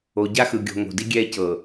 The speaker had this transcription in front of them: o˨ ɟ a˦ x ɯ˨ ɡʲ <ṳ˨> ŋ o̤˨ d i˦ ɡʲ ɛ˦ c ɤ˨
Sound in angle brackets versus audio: incorrect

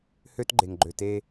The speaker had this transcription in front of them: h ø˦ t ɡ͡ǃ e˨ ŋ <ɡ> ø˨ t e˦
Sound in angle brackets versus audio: incorrect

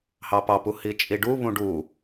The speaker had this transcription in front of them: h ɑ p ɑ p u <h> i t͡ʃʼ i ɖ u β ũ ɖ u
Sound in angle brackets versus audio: correct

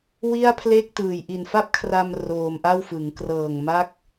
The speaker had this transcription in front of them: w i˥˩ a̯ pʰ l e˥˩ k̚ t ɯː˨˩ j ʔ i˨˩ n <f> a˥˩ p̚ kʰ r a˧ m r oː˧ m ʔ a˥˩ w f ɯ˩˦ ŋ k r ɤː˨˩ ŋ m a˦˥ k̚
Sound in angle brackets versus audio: correct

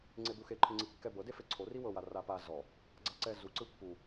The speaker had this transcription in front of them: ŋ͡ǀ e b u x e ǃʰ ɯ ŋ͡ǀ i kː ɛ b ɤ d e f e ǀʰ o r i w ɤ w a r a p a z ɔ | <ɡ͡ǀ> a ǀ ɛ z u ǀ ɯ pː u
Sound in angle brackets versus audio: correct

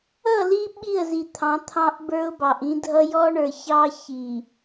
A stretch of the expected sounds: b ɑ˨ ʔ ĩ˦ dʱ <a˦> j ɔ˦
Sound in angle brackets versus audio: incorrect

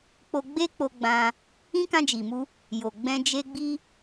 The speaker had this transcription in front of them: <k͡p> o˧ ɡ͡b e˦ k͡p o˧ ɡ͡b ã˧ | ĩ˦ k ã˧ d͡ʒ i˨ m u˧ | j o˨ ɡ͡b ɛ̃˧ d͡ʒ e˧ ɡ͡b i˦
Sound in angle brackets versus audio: correct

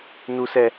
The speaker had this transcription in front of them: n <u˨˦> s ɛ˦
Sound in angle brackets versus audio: incorrect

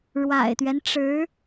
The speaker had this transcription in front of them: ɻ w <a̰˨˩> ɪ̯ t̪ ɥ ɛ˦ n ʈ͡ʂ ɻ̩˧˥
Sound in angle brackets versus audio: correct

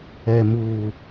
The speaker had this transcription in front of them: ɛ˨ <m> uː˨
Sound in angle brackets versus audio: correct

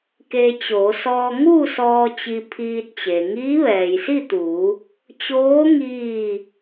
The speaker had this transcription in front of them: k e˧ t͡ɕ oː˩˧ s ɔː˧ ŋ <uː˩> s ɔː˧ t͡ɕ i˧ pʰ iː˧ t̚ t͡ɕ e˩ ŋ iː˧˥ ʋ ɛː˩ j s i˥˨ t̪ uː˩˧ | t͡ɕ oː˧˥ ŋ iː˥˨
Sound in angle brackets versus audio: incorrect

